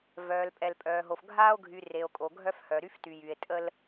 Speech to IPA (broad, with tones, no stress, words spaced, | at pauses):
vœː˨lpʼɛ˨lpʼœː˨ɦo˨f ɡʱaː˦o̯ɡʱy˨ re˨o̯kʼo˨ɡʱœ˦fhœ˨ ɾy˦fty˨jy˨e̯ tʼə˦l